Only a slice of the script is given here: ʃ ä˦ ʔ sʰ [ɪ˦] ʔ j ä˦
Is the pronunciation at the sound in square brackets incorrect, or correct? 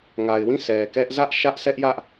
incorrect